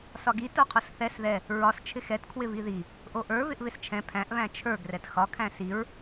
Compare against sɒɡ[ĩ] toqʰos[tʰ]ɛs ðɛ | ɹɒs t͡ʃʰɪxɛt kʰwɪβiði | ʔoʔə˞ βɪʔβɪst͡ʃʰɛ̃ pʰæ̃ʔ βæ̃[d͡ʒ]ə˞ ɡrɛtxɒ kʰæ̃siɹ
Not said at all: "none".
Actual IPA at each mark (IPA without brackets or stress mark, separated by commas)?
i, θ, t͡ʃʰ